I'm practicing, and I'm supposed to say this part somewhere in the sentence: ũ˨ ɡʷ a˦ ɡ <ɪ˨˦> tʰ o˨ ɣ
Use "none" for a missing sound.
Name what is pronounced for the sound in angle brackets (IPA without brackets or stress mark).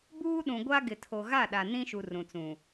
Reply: ɪ˨